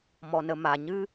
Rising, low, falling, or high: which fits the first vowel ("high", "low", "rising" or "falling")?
low